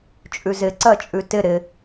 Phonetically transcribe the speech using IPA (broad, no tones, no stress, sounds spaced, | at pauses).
t͡ʃʼ ʉ z ɪ ǀ ɜ t͡ʃʼ ʉ t ɪ ɾ ɪ